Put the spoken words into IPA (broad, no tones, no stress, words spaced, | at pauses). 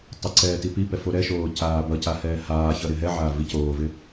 tˤəǀɛː tipipɛ foɾɛʃoː caːbʌca hɛːhaːçʌ ɾɪɦɛʕaː vicoːvɪ